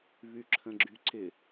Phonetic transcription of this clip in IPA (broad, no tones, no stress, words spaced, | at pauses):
βyǁʰə̃ɡ͡ǁyǀɪ